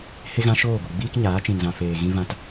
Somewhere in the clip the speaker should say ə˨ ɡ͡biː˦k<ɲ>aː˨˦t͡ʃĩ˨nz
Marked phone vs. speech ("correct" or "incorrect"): correct